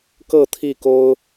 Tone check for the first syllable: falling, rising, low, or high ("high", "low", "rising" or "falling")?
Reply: falling